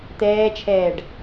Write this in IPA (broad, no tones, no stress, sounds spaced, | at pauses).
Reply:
t̪ ɛː t͡ʃʰ ɛː ɖ